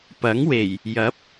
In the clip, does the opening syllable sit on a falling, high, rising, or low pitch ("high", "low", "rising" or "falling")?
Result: rising